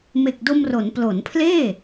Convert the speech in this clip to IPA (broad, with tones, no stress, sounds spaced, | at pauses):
m e˨˩ k̚ d o˧ m r o˩˦ n p l o˩˦ n pʰ l eː˥˩